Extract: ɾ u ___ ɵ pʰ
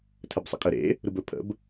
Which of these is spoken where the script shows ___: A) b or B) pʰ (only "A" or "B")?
A